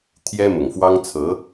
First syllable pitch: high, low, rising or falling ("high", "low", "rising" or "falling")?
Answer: high